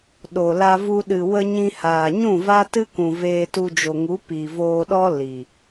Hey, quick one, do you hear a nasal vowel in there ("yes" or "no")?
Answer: yes